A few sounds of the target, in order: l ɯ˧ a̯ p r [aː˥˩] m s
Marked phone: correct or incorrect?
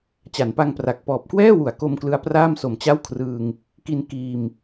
correct